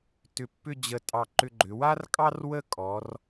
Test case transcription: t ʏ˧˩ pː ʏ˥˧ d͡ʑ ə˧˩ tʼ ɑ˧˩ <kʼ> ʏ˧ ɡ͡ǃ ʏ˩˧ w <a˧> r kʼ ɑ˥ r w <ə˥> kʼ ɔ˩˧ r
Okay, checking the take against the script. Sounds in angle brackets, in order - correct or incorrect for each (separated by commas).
incorrect, incorrect, incorrect